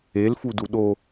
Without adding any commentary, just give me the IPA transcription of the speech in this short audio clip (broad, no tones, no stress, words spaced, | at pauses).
elfudu ɗo